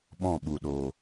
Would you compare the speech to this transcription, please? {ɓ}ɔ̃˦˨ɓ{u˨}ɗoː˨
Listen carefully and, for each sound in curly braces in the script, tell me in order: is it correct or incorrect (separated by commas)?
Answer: correct, correct